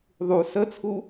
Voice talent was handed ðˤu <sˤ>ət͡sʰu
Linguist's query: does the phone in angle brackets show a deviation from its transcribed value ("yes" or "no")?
yes